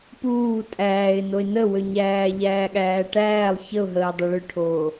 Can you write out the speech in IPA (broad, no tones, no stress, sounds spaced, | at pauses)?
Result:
p uː tʼ æː ɪ̯ n o ɪ̯ n ə w ø ɲ æː ʎ æː ɠ æː ʈ æː lˠ ç ə ʊ̯ ɦ əː dˤ ə˞ ɭ ʏ ʈʰ oː